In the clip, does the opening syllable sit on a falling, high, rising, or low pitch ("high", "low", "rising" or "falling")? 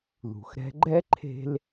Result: low